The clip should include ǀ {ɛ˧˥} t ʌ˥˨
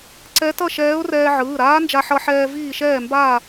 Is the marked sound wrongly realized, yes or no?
no